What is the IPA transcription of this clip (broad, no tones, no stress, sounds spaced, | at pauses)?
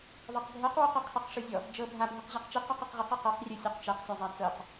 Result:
ðˤ e q bʱ ɤ q w o q ɛ qʰ e q ʂ ɯ zʲ ɔ | d͡ʒ ɤ bʱ a bʱ i q ʑ a q t͡ʃ i q ɔ q e q ʁ ɯ q i q ɤ q rʲ o sʲ ɤ q t͡ʃ ɛ q sʲ a zˤ a t͡s ɤ q